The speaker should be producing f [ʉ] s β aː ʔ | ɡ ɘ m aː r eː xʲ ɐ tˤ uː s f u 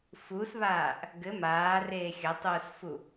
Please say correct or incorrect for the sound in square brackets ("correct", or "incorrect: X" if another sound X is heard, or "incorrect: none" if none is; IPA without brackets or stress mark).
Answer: incorrect: u